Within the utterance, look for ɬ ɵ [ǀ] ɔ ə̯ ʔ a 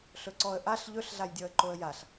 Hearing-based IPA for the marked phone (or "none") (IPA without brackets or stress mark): ǀ